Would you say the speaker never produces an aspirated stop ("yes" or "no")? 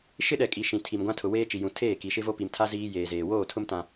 no